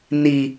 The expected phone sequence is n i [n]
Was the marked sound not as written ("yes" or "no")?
yes